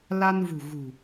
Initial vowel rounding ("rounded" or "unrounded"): unrounded